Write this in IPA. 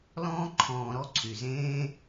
lɔ̃ː˧ǃʰɔ̃ː˨ɾɔ˧ ǀʰy˨zẽː˦

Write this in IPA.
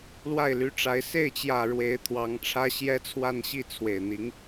lwa˥˩ɪ̯ly˧˥ʈ͡ʂa˧˥ɪ̯ se˥˩ɪ̯t͡ɕjä˨˩ ɻwe˧˥ɪ̯t̪ʰwɑ˧˥ŋʈ͡ʂʰä˥ ɕjɛ˥t͡sʰwa˥˧n ɕi˥˩t͡sʰwe˨˩ɪ̯n̪i˧˥ŋ

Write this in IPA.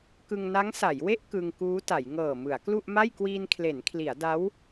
kɯ˧ŋna˦˥ŋsa˩˦jwe˥˩ʔ kɯ˧ŋkuː˦˥ta˩˦j ŋɤː˨˩mɯ˩˦a̯ klu˥˩ʔma˥˩j kwiː˧nkʰle˩˦nkʰli˩˦a̯ da˦˥w

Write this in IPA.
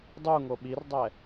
dˤuŋo ɓirdˤɛ

